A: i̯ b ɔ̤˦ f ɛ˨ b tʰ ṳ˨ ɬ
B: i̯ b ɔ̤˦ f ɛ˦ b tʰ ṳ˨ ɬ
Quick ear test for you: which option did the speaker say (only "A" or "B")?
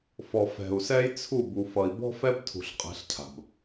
B